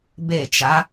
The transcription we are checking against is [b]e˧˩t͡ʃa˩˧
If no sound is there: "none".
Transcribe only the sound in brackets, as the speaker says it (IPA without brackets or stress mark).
b